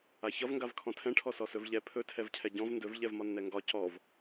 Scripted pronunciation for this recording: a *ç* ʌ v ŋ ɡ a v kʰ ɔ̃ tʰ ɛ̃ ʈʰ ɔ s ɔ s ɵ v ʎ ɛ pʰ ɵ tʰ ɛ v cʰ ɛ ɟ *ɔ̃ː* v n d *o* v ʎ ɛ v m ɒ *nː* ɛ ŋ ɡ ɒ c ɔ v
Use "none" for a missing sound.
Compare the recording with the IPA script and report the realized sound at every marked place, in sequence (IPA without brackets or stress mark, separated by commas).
ç, ɔ̃, ɵ, nː